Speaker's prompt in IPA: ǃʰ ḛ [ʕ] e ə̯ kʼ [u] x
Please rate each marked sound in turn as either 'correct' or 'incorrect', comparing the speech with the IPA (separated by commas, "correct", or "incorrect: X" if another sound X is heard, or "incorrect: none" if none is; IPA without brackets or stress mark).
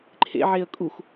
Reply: correct, correct